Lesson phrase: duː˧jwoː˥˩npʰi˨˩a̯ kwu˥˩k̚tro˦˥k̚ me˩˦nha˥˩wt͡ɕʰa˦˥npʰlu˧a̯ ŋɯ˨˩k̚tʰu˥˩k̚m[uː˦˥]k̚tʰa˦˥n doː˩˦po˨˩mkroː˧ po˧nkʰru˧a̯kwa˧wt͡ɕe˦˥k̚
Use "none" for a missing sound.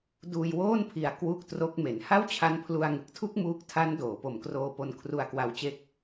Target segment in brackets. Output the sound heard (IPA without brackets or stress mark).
uː˦˥